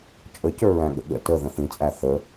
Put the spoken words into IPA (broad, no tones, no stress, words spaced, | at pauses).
t͡ʃʼəcə˞ɹæ̃ɠə̰ ɠə̰ təðə̃ θĩt͡sʼæ θə